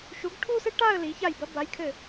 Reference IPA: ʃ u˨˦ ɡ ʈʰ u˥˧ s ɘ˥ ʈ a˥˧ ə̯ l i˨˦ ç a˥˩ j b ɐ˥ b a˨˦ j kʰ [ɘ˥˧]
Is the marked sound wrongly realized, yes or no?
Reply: yes